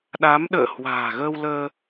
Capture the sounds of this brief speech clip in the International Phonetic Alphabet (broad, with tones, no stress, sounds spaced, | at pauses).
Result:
ɗ a˨˦ m ɗ ə̰ː˧˨ h w a̤ː˨˩ ɣ əː˧ w l əː˧